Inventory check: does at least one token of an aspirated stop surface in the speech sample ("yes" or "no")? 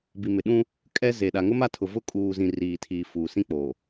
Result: yes